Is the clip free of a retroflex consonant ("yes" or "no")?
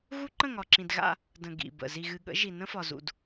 yes